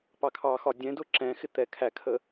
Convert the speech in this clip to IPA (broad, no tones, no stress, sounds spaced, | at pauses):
p ɑ kʰ ɑ x ɒ dʲ ɛ̃ d ʊ ǁ ɛ̃ x ɪ t̪ ɛ kʰ æ kʰ ə